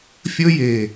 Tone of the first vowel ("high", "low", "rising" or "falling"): high